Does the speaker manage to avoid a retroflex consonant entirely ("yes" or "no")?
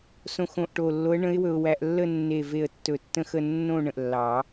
no